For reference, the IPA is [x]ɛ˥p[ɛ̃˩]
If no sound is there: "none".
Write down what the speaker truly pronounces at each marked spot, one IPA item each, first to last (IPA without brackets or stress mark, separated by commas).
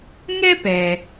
ŋ, ɛ˩